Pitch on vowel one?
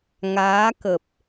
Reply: rising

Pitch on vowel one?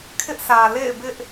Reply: high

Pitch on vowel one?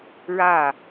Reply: falling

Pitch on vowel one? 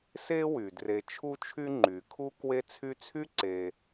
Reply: high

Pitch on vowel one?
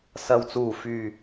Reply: low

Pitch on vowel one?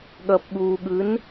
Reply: low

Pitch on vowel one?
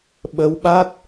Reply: rising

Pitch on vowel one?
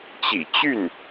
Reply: low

